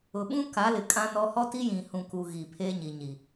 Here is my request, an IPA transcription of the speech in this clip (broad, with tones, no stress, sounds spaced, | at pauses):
ʊ˨ ɓ ũ˦ k a˨˦ l ɪ˨ kʼ ã˦ n ɔ˦ h ɔ˦ t i˦ j ĩ˨ h ũ˨ k u˨ ɣ i˨ pʰ eː˦ ɲ i˨ ɲ i˨